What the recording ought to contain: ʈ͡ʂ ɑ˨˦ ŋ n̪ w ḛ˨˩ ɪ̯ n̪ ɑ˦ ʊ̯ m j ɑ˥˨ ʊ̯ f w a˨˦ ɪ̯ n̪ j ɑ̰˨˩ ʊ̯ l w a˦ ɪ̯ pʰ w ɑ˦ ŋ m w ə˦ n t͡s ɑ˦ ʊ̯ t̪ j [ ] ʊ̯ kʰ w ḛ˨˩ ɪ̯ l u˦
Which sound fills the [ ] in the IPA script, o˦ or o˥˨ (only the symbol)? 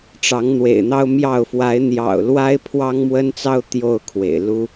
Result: o˥˨